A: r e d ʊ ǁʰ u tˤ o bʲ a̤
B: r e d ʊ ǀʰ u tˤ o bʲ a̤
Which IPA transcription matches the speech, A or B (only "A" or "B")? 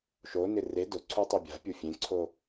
B